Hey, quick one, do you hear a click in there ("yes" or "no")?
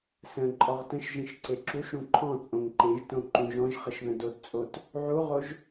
yes